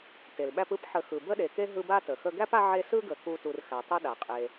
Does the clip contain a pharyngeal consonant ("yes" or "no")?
yes